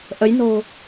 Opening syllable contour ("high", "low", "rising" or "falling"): rising